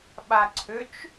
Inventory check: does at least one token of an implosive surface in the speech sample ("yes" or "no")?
yes